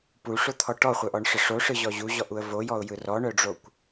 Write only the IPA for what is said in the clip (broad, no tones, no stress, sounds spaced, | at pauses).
p u ʂ o t̪ʰ ɔ ʈ ɔ χʷ œ ʔ ɔ ɳ ʂ ə ʂ o ʂ ɯ ʑ ɔ ʑ u ʑ ɔ ʔ u ə̯ v o j ɔ ʊ̯ j ɯ r ɔ ɳ œ ɖ͡ʐ o kʷ